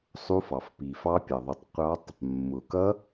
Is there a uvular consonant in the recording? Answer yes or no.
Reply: yes